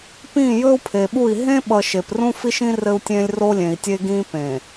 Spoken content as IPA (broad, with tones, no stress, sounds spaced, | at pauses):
p ĩ˦˨ j ɵː˦ u̯ pʰ e˨ ɓ u˦˨ i̯ ɦ ẽ˦ ɓ ʌ˨ ʃ e˨ p r ũ˦ f i˦ ʃ ĩ˦ r ɘ˦ u̯ tʲ ẽː˦ lʲ r o˦ lʲ ẽ˨ i̯ tʲ e˦ ɡ ĩː˦ p ẽ˨